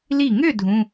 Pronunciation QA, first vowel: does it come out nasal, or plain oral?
oral